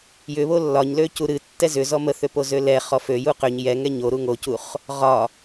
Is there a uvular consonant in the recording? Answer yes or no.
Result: yes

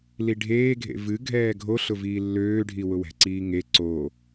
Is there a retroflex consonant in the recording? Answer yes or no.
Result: yes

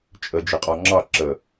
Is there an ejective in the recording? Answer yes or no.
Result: yes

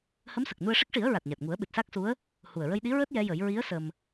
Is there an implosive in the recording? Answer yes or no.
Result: yes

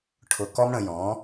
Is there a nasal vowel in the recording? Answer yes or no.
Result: yes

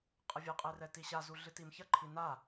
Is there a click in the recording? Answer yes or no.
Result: yes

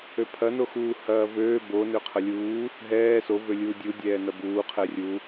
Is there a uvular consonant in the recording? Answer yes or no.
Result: yes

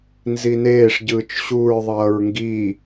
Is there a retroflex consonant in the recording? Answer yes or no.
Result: yes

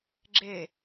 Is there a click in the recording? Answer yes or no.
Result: yes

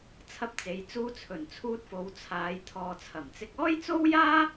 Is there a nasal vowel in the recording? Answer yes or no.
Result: no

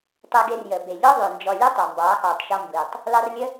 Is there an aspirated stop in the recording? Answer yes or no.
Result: no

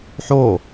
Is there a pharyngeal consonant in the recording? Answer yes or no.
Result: yes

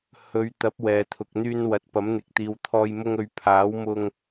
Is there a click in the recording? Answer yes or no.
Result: no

